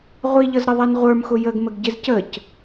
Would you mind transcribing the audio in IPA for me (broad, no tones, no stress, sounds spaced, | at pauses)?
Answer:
ʁʷ i ʎ ʌ z ɾ ə ðˤ ɛ n ʁʷ ə˞ m x ʊ j ə ɡ m ə ɡ ɟ ɪ z c ə c